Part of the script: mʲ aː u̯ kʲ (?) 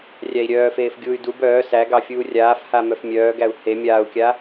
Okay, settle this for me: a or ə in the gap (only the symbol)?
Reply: a